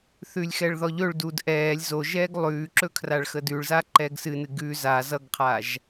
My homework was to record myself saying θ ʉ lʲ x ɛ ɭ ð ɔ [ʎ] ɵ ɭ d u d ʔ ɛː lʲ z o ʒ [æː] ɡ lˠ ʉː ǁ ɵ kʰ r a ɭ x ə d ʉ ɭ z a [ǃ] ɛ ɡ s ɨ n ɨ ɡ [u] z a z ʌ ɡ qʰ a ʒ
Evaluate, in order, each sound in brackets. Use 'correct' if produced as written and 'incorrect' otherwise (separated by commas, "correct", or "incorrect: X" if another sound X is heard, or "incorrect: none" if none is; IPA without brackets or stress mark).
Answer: correct, incorrect: ɛː, correct, incorrect: ʉ